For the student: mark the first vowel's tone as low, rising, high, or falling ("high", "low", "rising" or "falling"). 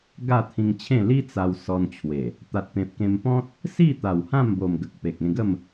falling